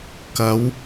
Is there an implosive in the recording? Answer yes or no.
no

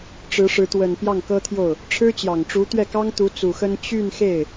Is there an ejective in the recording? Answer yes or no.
no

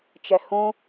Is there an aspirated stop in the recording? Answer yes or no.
no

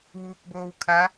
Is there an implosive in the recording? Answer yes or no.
no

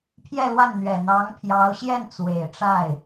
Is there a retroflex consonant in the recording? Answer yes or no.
yes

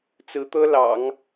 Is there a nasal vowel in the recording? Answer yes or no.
no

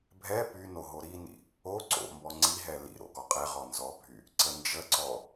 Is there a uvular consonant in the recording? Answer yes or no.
yes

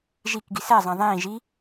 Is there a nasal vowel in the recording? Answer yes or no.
yes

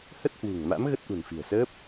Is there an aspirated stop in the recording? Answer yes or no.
no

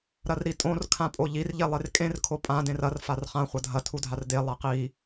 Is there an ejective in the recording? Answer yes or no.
yes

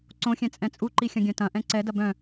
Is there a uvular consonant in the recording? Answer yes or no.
no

